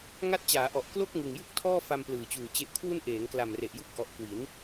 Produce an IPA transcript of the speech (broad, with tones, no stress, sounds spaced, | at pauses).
ŋ a˦˥ t̚ t͡ɕ aː˩˦ ʔ ɔ˨˩ ʔ k l o˥˩ k̚ ŋ ɯ˨˩ ŋ j u˥˩ k̚ tʰ ɔː˥˩ f a˧ m p l ɯː˨˩ t͡ɕ uː˨˩ t͡ɕ e˨˩ ʔ kʰ w u˧ n ʔ eː˩˦ ŋ k l a˨˩ m r e˨˩ ʔ j u˦˥ k̚ ʔ ɔ˨˩ ʔ k w i˩˦ n